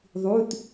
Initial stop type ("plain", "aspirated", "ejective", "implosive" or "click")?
plain